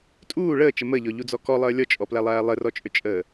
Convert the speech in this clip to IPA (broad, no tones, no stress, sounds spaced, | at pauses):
tʼ uː ɭ əː t͡ʃ ə m ə ʎ ɔ ʎ u d͡z ɔ k ɔ lˠ əː lʲ ɔ t͡ʃʼ ɔ p l æ lˠ æː lˠ ɘ r ɔ t͡ʃʼ ø t͡ʃʼ əː